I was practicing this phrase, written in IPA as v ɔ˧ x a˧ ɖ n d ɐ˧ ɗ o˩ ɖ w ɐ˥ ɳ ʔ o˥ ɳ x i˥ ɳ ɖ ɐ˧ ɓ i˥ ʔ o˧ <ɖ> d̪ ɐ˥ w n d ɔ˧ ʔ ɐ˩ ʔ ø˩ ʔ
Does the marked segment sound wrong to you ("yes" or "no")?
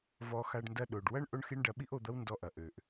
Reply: yes